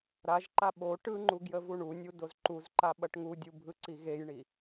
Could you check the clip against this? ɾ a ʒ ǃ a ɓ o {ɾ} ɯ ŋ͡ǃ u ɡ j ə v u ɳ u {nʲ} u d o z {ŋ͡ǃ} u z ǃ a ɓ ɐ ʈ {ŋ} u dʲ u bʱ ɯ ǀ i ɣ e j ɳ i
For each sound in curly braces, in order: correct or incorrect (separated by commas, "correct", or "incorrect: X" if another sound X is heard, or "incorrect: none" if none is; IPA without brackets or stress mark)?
incorrect: ʈ, correct, incorrect: ǃ, correct